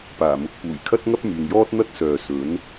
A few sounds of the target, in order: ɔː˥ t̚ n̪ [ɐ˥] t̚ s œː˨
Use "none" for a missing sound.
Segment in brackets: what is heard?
ɐ˥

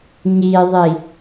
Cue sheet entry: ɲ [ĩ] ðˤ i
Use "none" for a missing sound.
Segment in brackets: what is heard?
i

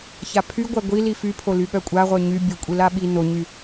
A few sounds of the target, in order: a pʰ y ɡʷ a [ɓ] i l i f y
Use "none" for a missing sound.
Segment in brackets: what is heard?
ɡʷ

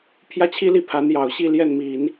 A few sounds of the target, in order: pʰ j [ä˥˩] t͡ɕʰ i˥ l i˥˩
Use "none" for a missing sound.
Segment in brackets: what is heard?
ä˥˩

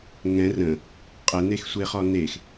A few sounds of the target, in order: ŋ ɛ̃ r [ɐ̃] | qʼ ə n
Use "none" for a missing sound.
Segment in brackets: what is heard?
ə̃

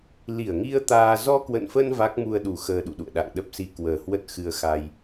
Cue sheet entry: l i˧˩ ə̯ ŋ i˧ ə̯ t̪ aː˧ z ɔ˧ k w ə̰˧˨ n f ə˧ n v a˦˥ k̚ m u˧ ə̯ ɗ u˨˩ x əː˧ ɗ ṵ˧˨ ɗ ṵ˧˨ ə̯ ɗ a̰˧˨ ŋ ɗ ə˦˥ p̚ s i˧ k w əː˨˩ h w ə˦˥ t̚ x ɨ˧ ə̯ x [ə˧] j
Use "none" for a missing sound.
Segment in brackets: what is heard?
a˧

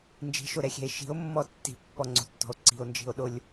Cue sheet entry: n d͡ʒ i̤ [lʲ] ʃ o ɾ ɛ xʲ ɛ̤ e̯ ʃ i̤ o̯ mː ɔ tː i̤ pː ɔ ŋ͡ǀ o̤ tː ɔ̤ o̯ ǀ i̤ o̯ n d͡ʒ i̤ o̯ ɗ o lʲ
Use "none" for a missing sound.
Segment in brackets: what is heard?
none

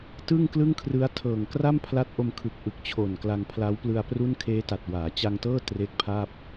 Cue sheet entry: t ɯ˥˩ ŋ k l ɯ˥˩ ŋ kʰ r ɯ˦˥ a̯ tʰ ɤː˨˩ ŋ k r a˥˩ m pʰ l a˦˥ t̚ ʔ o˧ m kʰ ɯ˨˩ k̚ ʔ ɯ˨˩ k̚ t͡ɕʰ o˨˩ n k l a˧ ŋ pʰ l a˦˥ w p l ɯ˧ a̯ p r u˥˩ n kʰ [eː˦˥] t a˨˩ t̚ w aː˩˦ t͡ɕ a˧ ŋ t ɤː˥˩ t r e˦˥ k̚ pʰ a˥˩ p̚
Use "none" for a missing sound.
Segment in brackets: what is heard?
eː˦˥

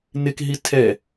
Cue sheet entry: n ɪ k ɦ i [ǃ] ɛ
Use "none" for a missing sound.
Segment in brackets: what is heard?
tʰ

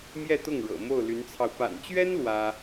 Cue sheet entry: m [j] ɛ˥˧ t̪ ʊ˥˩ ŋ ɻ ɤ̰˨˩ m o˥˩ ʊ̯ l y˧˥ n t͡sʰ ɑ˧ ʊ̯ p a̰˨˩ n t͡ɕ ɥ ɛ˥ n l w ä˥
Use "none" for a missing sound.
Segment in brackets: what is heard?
j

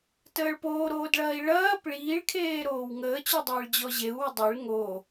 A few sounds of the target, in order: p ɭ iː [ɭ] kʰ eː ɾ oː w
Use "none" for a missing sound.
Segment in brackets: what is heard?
ɭ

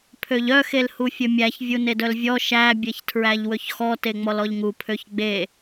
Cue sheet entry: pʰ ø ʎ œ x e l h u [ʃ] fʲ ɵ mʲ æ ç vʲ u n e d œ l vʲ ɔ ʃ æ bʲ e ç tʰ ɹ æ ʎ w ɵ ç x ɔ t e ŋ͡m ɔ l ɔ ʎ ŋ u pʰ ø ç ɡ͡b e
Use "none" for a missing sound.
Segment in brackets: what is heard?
none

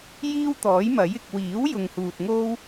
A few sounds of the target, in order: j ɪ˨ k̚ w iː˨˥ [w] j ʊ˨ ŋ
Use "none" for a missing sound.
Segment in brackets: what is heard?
w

